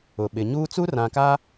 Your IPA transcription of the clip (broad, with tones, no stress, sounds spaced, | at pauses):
ʊ˨ ɓ ɪ˨ ɲ uː˦ t͡s u˦ r ã˨ k a˦